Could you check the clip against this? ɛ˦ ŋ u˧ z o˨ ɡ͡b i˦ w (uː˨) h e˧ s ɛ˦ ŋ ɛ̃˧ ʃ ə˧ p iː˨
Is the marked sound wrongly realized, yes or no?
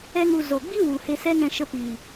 yes